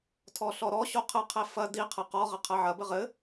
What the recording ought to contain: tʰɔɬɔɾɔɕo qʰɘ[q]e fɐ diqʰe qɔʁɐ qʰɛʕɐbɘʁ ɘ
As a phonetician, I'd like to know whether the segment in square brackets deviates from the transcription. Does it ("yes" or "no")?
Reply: yes